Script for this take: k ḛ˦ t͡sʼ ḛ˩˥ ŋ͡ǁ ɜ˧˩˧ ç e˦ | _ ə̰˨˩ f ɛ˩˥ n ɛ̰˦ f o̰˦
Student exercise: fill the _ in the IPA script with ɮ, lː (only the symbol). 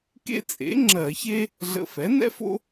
ɮ